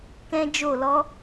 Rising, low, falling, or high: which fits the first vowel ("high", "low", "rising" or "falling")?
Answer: high